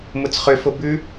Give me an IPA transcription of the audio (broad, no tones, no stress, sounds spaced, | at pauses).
m ʊ t͡s χ ʏ f o b ʉ